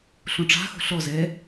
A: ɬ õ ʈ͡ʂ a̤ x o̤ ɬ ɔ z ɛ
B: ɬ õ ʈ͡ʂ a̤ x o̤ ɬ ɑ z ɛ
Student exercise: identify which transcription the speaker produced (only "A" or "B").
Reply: A